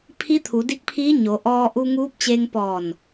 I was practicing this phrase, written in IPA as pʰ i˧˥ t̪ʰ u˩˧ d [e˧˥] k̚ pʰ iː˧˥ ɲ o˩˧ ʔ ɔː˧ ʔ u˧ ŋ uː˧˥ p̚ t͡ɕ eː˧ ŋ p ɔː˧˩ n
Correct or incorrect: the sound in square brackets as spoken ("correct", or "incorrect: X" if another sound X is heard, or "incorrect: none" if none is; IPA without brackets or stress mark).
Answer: incorrect: i˧˥